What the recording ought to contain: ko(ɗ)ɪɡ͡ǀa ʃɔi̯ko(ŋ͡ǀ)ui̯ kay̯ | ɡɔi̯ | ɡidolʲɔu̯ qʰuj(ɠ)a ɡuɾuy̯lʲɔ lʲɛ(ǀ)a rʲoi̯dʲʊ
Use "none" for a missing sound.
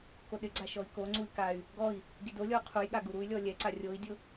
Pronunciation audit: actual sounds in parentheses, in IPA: ɗ, ŋ͡ǀ, ɠ, ǀ

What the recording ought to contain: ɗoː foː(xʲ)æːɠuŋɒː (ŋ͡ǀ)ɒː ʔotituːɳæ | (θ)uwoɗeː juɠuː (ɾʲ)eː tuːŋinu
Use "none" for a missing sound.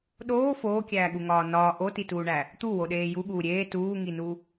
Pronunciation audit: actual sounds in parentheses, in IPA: kʲ, n, t̪, ɾʲ

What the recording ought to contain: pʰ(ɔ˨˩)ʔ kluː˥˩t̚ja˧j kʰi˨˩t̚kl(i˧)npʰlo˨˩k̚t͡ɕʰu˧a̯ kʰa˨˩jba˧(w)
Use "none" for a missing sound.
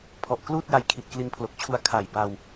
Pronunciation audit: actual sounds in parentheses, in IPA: ɔ˨˩, i˧, w

